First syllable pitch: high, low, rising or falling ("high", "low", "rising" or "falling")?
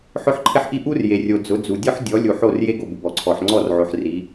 high